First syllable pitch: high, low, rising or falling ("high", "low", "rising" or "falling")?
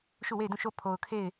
falling